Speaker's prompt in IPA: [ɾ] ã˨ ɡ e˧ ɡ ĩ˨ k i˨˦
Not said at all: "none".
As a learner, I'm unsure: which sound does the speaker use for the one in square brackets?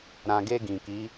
ɾ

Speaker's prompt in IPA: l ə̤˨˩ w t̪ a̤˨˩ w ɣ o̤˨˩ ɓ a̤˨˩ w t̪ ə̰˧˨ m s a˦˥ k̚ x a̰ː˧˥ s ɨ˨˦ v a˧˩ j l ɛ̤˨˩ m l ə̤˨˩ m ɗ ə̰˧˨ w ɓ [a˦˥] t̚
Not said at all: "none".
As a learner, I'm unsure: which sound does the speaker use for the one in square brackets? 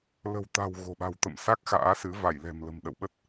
ə˦˥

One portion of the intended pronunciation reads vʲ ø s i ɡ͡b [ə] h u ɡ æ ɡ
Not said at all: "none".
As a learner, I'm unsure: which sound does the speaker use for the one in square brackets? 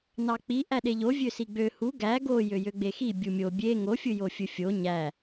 ø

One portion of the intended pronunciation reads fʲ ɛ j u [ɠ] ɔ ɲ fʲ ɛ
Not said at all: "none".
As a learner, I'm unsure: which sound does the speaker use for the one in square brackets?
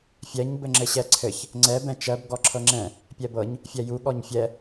ɠ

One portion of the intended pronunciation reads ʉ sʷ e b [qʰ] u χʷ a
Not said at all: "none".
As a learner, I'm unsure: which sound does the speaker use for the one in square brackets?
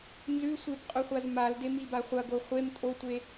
qʼ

